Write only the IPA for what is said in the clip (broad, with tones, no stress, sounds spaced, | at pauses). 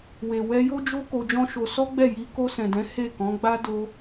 w e˨ w ɛ˧ j o˦ d͡ʒ o˦ k o˧ d͡ʒ ɔ̃˦ ʃ o˧ s ɔ˦ ɡ͡b ɛ˦˨ j i˧ k o˧ s ɛ̃˨ d ɛ̃˨˦ h e˦˨ k ɔ̃˨˦ ɡ͡b a˦ d o˧